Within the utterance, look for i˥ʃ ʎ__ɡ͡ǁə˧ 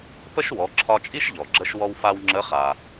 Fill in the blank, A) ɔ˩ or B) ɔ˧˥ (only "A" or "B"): A